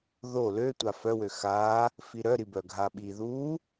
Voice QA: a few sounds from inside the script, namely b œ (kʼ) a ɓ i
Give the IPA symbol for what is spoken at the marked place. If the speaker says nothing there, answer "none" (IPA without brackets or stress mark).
ɡʱ